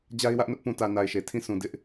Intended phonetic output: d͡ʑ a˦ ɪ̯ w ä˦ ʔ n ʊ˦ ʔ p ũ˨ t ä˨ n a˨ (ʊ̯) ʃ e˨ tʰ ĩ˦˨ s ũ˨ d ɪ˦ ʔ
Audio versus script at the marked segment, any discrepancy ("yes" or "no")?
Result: yes